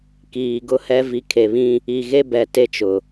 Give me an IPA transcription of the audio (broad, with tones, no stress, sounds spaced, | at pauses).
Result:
k iː˨ ɡ ʊ˦ h ɛ˦ v i˨ kʰ e˨ β ĩ˦ | i˨ ɣ e˦ b ɛ˨ t e˦ t͡ʃ ʊ˨